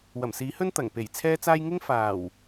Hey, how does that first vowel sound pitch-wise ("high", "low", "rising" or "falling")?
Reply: low